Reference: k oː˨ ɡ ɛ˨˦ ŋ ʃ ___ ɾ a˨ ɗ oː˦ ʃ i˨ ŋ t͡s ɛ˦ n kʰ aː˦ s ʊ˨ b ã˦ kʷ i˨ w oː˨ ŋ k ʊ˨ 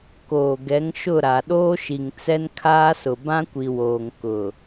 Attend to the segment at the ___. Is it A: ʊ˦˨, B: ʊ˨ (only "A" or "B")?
A